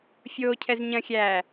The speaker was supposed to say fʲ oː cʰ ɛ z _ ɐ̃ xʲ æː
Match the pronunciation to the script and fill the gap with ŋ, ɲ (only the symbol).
ɲ